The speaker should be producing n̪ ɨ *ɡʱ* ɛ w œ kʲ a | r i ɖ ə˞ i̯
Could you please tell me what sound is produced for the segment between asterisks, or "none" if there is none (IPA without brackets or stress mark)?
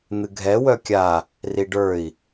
ɡʱ